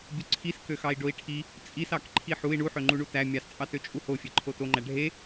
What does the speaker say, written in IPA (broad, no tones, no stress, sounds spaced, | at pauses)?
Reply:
bʲ u ǀʰ i s k ø x ɑ i̯ ɖ o i̯ ʈʰ i | t͡sʼ i s ɑ k ǃʰ i ħ u i̯ ɳ u ħ ø ŋ͡ǃ u ɳ u t æ mʲ ɑ s t͡sʼ ɑ t ø t͡ʃʼ u h o fʲ e ǃʰ o t o ŋ͡ǃ æ ɖʱ e